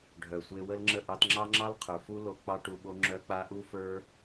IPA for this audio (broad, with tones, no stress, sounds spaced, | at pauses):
ɖʱ œ˨ sʷ e˧ w ə˦ l ŋ͡ǁ ə˦˨ ʔ ɑ˧ t ŋ͡ǁ ɑ˦ ŋ͡ǁ ɑ˦ l qʰ ə˞˨ f u˦ l o˧ k͡p ɑ˧ ʈ u˨ ɓ o˧ ŋ͡ǁ œ˧ k͡p a˧ ʔ u˦ f ə˞˦